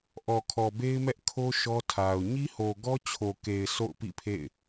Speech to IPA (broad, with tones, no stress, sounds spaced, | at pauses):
ʔ ɔ˨ kʰ ɔ˨ b e˦ ɪ̯ m ɛ˦ ʔ kʰ o˦ ʃ ɔ˦ tʰ a˨ ʊ̯ ɲ i˦ h o˨ ɡ ɔ˦ t͡ɕʰ o˨ k e˨ ɪ̯ sʰ o̰˦˨ ʊ̯ p ḭ˦˨ pʰ ḛ˦˨ ɪ̯